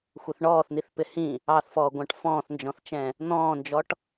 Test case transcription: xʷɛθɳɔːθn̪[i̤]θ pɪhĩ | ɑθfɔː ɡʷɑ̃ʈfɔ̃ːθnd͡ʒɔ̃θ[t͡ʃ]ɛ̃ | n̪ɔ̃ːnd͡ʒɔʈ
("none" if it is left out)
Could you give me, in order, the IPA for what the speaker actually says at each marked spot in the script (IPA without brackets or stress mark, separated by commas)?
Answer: i, t͡ʃ